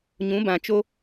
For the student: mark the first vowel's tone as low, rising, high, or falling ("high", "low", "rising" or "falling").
rising